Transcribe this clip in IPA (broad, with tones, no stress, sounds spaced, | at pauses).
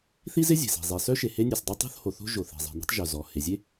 θ i˥ z ɪ˥ zʲ e̤˩ s e̤˩ zˤ e˩ s œ˥ ʃ e˩ h e˥ nʲ e˩ s dˤ e˥ tˤ o̤˥ θ h o˩ θ o̤˥ ʒ o˩ θ e̤˩ zˤ e̤˩ n e̤˥ tˤ ʒ œ˩ z ɔ˩ h e˩ zʲ e˥